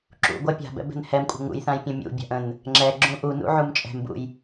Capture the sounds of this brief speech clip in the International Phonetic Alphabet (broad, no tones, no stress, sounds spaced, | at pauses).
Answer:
ǁ ṵ ɡʷ ɜ pʲ a̤ b ɛ̰ b ɛ̤ n h ɛ m kʷʼ ə̤ ŋ ṵ j θ ã j pʲ ə̃ mʲ ṵ bʲ a̤ ʔ ə̃ n | ŋ͡ǁ ɛ ɡ͡ǁ ũ ʔ u n ṵ ʕ u m t͡ʃʼ ɛ̤ m b ṵ j